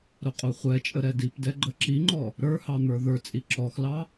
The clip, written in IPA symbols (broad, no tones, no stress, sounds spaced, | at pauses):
ɾ ʊ qʼ u χʷ ɛ t͡ʃʼ ə ɾ ɛ d i p d ɛ ɡ͡ǃ ə ǁ i ŋ͡ǃ ɔ | ɾ ə˞ h ɑ n̪ ə˞ ð ə˞ t͡sʼ i ǁ ɔ x l ɑ